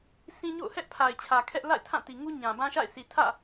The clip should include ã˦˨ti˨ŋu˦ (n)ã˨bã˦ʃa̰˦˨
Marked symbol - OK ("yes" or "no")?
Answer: no